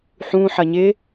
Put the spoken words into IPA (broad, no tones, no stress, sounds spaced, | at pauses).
ħ ũ ħ ɐ ɲ ɪ